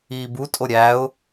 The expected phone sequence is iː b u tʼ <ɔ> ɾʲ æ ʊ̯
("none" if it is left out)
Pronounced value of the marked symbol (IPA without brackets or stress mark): o